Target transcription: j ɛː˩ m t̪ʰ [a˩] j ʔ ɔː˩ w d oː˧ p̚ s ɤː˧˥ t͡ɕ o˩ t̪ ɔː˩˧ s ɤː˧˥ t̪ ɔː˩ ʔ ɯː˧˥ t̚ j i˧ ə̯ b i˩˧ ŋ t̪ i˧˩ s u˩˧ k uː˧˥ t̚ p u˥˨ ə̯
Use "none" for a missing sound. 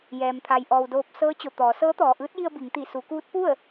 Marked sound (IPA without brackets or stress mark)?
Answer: a˩